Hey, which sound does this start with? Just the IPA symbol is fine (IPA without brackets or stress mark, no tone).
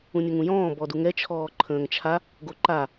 ũ